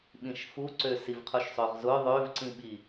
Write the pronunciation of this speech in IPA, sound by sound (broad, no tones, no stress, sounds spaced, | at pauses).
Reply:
ɓ ĩ ʃ f u ǀ ø s i v qʰ u ʃ sˤ ø ʁ z ʊ ðˤ ø v ǀ ĩ ɓ i